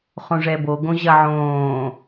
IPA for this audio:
χõʐɛbo ɡõʑɐʕõː

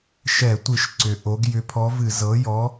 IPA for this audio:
ʃɛ˧˩˧tʷɨ˧˩˧ʃ ǀʏ˩˧ ʔo˩˧ɡ jʏ˨˥pʰɔ˨˥vɨ˧˩˧ zɤ˩˧jɔ˩˧

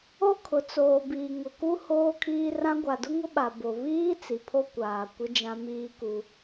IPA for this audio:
o˦kʰʊ˨t͡soː˨ biː˨ŋʊ˨ku˦ hoː˦kʰiː˦rã˦ ɡʷa˨dʊ˦ŋʊ˦ɓa˨ bo˨ βiː˦ t͡si˨pʰo˦ kʷaː˨ kʷɪ˦d͡ʒã˦ miː˦ku˦

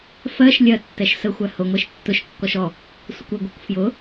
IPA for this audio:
fɜʃ lʲɜtːɛʃ səxʷæ hʊŋʷɛʃ tːʊʃkːɔʃ ɔ | sʷɪkʷɪɡʷɜkʷ fjʊ

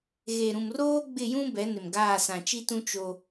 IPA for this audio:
ɣe˨ɾũ˨mroː˦ ɡ͡bɪ˦˨jũ˦ bɛ˨˦nɪ˨mɡaː˦˨ sã˨t͡ʃi˦tũ˦ t͡ʃo˦

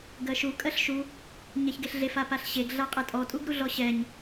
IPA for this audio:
ɡɜʃu kʼɜɬʃu | ɲɛçɡeɬɮef apaɬɕeɡ ɮaqʼɛtʼɔ tʼuɡɾuɮɔɕɛɲ

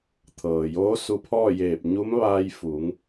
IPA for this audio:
t̪ʰɤː˩joː˧˥su˧pʰɔː˥˨ jeː˧˩p̚ ɲu˧˥mʋaː˧j fu˩˧ŋ

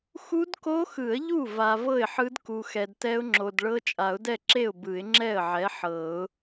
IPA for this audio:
xu˦˥dko˦˥xɯ˨˩˦ə̯ ʎu˥˩va˨ vɤ˥˩ɪ̯ħɯ˦˥d ku˨xɛ˨dtɛ˦˥ʊ̯ŋ͡ǁo˨d ɭɤ˦˥t͡ʃʼa˨˩˦ʊ̯dɛ˥˩ǁe˥˩ʊ̯ bɯ˨˩˦ɪ̯ŋ͡ǁɛ˥˩ə̯ʕɛ˨˥ ħɤ˨˩˦ʊ̯

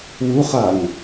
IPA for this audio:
wuχaŋ

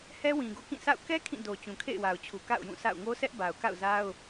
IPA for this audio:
hɛ˦wĩ˨ɡo̰˦˨ kĩ˦˨sa̰˦˨ʊ̯ kɛ˦ kʰĩ˦˨do˨ t͡ɕũ˨kʰḛ˦˨ɪ̯wa˨ʊ̯t͡ɕʰu˨ ka̰˦˨ʊ̯jũ˦˨ sa̰˦˨ʊ̯ ŋo˦sɛ˦ʔ ba˨ʊ̯ka̰˦˨ʊ̯za˦ʊ̯

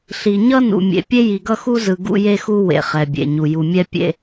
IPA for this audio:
ɬi˨ ɲʌ˦nṵ˨mʲḛ˨ pʲe˦ji˨ɡʌ˦xu˦ zɯ˨ɡṵ˦je˦xu˦ wḛ˨χɛ˨bʲḛ˨ɲu˨ ju˨mʲɛ˦pʲḛ˦

